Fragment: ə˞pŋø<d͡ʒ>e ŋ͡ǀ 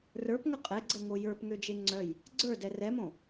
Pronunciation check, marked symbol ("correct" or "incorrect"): correct